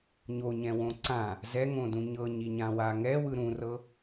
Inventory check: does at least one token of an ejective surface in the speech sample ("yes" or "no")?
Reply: no